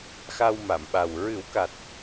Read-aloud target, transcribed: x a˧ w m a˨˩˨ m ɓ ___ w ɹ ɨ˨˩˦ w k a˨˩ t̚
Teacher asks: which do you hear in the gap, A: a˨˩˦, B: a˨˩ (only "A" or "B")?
B